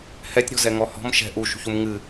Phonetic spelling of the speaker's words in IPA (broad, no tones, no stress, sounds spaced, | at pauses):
h ɛ tʲ ɾ ɔ̤ z ɛ ŋ ɔ h ɔ̤ m ʃ ɛ̤ ʔ u ʃ ṳ ç u m ŋ ɨ